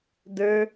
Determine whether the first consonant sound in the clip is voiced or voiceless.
voiced